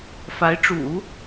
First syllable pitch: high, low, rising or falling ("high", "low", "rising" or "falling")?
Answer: rising